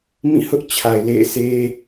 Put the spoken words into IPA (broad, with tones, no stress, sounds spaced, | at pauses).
m ĩ˦˨ h ʊ˦ ʔ t͡ɕʰ a˨ ɪ̯ l ḛ˦˨ ɪ̯ sʰ e˦